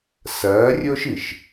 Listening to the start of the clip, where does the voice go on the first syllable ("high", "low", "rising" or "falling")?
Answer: rising